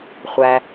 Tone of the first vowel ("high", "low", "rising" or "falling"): low